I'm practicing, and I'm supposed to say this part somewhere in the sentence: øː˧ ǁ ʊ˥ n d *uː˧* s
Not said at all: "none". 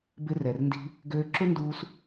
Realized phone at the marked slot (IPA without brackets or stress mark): uː˧